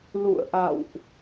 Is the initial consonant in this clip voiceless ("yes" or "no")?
no